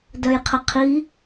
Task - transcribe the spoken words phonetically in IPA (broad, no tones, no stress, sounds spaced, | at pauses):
d œ j qʰ ə qʰ i